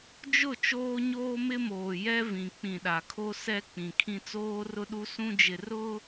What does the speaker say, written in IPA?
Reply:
d͡ʒ ʊ˦˨ t͡ʃ oː˦ ɲ oː˦ m ɪ˦ m oː˨ j ɛ˦ v ĩ˨ k͡p ĩ˨ ɗ a˨ kʰ o˦ s ɛ˦ k͡p ĩ˨ kʰ ĩ˦ t͡s oː˦ r ʊ˦ ɗ u˦ s ũ˦ d͡ʒ ɪ˨ r ʊ˦

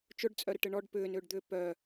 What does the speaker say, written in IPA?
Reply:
t͡ʃ ʊ ɖ t͡sʼ œ ɾ ɪ ʈ ɪ ɳ ɔ ɖ p ʏː n ʏː ɖ d̪ ʏː p œ

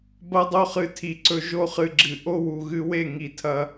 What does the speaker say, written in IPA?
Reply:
b ɐ˧ dˤ o˧ χ ɨ˨ tʰ i˨ ǀ ɵ˨ ʒ o˦ χ ɨ˧ ɡ͡ǁ ɨ˨ ʔ o˦ w u˨ ɣ ɨ˧ w e˦˨ ŋ i˨ tʰ ɐ˧

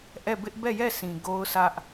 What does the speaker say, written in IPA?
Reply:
ʔ ɛ˦˨ b ɪ˦ ʔ b ɛ˦˨ j ɛ˦˨ s ĩ˨ ɡ o˦ ʊ̯ sʰ ä˦ ʔ

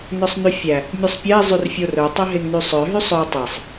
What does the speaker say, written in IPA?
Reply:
n œ sˤ n y fʲ æ | mʲ œ sˤ pʲ ɛ e̯ zˤ y r fʲ o r œ tˤ œ ɦ e ŋ n y sˤ œ ɦ y sˤ œ tˤ e sˤ

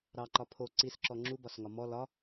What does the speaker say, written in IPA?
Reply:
ɾ ɑ ǃ ɒ pʰ o ǀ i s ǁ ɔ ŋ͡ǁ u b ɒ s ŋ ɒ m ɔ l ɒ

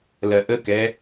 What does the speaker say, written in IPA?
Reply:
l ɜ ʔ ə k ɛ

